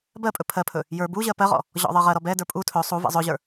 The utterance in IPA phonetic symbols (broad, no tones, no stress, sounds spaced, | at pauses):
b ɜ pʼ ɵ pʰ ɜ pʰ ɵ | j ə˞ b u ʑ ɜ p ɜ ʁ ɔ̰ | ʑ ɔ̰ ðˤ ɜ ʁ ɜ ɾ ɔ b ɛ d ə˞ pʼ u tʰ ɵ sˤ u v ɛ̰ zˤ ɵ ʑ ə˞